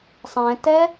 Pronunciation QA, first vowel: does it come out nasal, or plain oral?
nasal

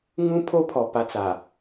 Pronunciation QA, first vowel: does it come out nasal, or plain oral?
nasal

